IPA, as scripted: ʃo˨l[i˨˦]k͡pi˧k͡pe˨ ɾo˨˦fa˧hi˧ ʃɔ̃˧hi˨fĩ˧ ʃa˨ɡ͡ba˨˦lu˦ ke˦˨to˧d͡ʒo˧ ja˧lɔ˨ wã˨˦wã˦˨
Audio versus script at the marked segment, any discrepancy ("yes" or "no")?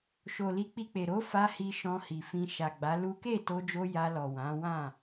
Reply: no